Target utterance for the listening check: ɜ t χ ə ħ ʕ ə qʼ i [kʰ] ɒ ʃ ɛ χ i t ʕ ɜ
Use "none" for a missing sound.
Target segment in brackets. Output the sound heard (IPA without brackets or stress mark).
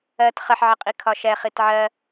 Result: kʰ